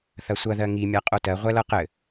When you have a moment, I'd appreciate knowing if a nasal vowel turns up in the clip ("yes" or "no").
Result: no